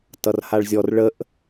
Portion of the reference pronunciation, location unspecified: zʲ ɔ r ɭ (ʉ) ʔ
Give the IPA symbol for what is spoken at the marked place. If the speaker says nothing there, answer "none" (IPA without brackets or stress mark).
ə